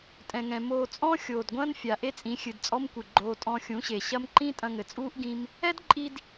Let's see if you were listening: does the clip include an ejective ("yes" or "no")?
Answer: yes